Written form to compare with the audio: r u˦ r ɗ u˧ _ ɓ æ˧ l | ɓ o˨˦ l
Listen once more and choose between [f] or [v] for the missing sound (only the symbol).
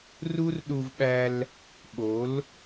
v